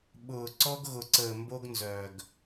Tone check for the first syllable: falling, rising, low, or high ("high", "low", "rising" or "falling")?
low